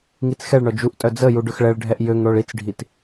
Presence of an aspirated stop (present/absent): absent